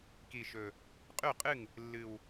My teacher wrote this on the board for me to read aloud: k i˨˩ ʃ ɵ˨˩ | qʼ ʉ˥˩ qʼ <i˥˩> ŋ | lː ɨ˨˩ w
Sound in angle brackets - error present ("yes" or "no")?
yes